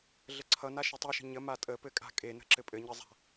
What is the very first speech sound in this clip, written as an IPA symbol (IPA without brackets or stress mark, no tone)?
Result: ɮ